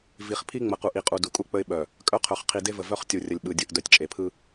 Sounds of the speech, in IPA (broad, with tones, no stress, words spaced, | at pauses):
vi˨χpʰi˦ŋ͡mə˨qu˨ʔ i˨qʼu˨ du˨kʼu˦k͡pə˦ɪ̯ ɓœ˨ | kʼœ˦qʰœ˨χ qʰi˨de˦və˨ vœ˦χtʲu˨rʲə˨lʲ ɓɯ˨dʲɯ˨ʔ dœ˨tʲt͡ʃʼe˨pʰɯ˦